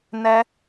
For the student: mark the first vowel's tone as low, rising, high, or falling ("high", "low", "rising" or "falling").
high